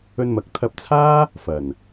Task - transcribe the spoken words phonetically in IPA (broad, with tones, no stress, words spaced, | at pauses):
ɵ˧nmɐ˨k̚t̪ʰɐ˧p̚ t͡sʰaː˥ | fɐ˨˩n